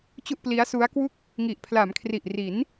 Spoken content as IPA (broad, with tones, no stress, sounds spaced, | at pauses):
t͡ɕ u˥˩ ʔ p l i˦˥ a̯ s u˦˥ a̯ k w u˥˩ k̚ | ŋ i˨˩ ʔ pʰ l a˩˦ m kʰ r i˨˩ ʔ r i˩˦ n